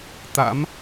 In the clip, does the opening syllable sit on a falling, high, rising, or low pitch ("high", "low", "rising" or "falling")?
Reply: rising